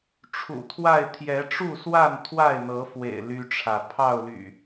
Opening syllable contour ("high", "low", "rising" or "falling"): low